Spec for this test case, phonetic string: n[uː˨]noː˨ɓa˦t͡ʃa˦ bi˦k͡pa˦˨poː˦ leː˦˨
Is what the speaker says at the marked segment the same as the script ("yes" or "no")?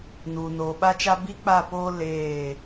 yes